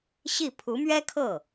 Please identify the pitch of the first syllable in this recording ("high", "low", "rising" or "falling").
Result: falling